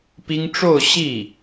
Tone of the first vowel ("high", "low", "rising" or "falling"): high